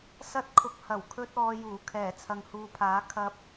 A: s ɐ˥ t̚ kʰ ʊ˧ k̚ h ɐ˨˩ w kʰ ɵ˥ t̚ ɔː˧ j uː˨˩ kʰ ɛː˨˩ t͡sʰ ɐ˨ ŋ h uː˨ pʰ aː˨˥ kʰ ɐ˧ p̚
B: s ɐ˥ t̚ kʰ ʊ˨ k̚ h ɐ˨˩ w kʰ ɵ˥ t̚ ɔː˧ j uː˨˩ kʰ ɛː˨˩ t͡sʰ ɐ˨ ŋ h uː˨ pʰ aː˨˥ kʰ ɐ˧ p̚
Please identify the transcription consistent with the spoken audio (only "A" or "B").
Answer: A